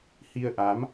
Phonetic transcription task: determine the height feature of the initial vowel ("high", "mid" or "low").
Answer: high